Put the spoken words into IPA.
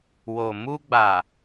w o˨ m u˧ ɡ͡b a˨

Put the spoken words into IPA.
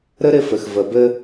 ɾ ɘ˦ ɾ ɪ˧ f ɘ˨ x v ə˨ b ɘ˧

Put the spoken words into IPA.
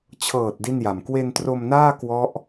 t͡ɕʰ ɤː˨˩ t̚ d i˥˩ n j a˨˩ m k w e˧ n t r o˧ m n aː˥˩ k w ɔ˦˥ ʔ

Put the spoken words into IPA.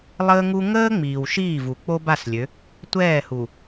lˠ əː˦ ŋ u˦ ŋ əː˦ ŋ͡m iː˨ w ʃ iː˦˨ v u˨ k͡p o˦ b a˦˨ s lʲ ø˨˦ | tʷ ɛː˦˨ h u˨

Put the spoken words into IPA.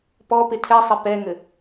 p ɔ p ɪ tʰ ɛ sˤ ɪ p ɛ ŋ ɘ

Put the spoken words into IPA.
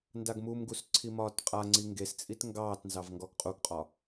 n d a ɡ m u m ɡ u s ǀʰ i m ɒː t qʼ a ŋ͡ǀ i ŋ ɡ e s t͡sʼ i t ŋ ɡ ɑː t n z ɑ v ŋ ɡ ɔ ɡ qʼ u ɡ qʼ ɒ

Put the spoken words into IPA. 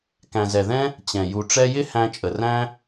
k æ̃˨ z ɛ˨ ð ɛ̃˦ | t͡ɕ ɛ̃˨ j u˨ ʈ͡ʂ ɛ˧ j ɪ˦ h æ̃˧ t͡ʃʼ ə˨ r æ̃˦

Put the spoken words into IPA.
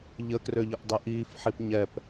ʎ ə k r ø ʎ ə ʔ dˤ e ʔ iː f ħ i p ɲ ɛ p

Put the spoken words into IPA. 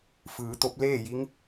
f ɯː˩˧ t̪ o˧˥ p̚ l eː˥˨ j i˧˥ ŋ

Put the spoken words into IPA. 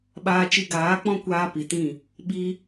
ɓ aː˧ t͡ʃ i˧ ɡ aː˨˦ k͡p ɔ̃˦ kʷ aː˦ p i˨ t ĩ˦˨ | ɓ i˦

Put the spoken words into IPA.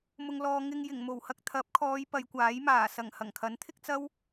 m ʊ˨ ŋ l ɔː˨ ŋ ɪ˧ ŋ j ɪ˨˩ ŋ m o˨˩ w h ɐ˧ k̚ t̪ʰ ɐ˨˥ p̚ kʰ ɔː˨˧ j p ɐ˨˧ j kʷ aː˨˥ j m aː˨˩ s ɐ˨˩ ŋ h ɐ˨˩ ŋ kʰ ɐ˨˥ n t̪ʰ ɪ˥ k̚ t͡s ɐ˥ w

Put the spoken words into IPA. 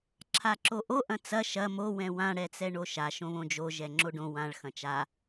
ǁʰ a ǁ o ʔ o ʔ ɐ̃ t͡s ɐ ʃ ɐ m o w ɛ̃ w ã ɽ ɛ t͡s ɛ ɳ o ʃ a ʃ õ β õ d͡ʒ o ʒ ɛ ŋ͡ǁ o ɖ õ w ã ɭ x ɐ̃ t͡ʃ a

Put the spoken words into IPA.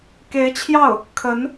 k e˧˥ ɪ̯ t͡ɕʰ j ɑ˥˩ ʊ̯ | kʰ ə˧˥ n

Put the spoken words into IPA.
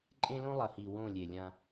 ǃʼ ẽ˦ l õ˦ lˠ ɐ˨ h i˨ w õ˦˨ lʲ e˨ lʲ ã˦

